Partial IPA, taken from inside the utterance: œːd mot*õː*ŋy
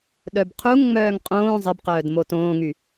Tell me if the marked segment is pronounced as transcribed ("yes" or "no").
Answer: yes